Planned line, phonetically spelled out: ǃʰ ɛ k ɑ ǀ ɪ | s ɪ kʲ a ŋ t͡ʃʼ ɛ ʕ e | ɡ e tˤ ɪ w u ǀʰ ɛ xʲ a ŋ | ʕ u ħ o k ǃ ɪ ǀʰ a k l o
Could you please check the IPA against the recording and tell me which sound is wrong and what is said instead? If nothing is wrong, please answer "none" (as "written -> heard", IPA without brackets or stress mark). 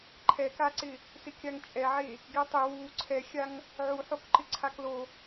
ɑ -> a